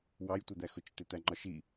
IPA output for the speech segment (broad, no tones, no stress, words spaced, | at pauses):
wɑjtʷʌd̪æxʊt͡ʃ t̪ɪt̪æŋ͡ǃɒʃi